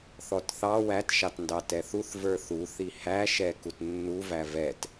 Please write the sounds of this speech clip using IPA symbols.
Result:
θɔtθɑ wætʃɑtndɑ tɛθuθ və˞θuθi hæʃɛ kutnːuvæ vɛt

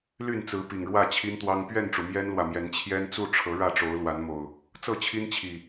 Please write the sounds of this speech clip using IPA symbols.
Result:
ly˥˨nt͡sɹ̩˨˦ pi˨˩ŋɻwä˥˨t͡ɕʰi˦nt̪wɑ˦ŋ pɥɛ˥˨nʈ͡ʂu˩ mjɛ˦nlwä˨mjɛ˨˦n t͡ɕʰjɛ˦nt͡su˥˨ʈ͡ʂʰɤ˨˦ ɻä˥˨ʈ͡ʂo˨˦ʊ̯lwa˨˦nmo˨˩ʊ̯ | t͡sɤ˥˨t͡ɕʰi˦nt͡ɕʰi˨˩

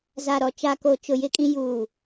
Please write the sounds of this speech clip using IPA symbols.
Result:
za˨ɾɔ˨ t͡ʃa˨ko˨t͡ʃʊ˨ jɪ˦kʼĩ˦ juː˨

